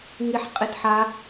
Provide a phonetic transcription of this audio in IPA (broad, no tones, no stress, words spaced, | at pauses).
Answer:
ŋiħqʼɪd ħa